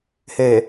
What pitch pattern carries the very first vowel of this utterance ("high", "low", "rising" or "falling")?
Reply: low